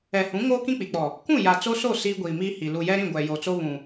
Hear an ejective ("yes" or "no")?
no